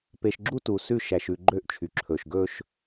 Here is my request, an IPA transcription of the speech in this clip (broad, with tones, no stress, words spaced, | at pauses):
pe˨ʃɡ͡ǁu˦ tu˨ sʉ˦˨ʃæ˨ʃʉ˨ ɡ͡ǃø˦˨ʔt͡ʃʰy˨ǁʰɵː˨ʃɡɵː˦ʃ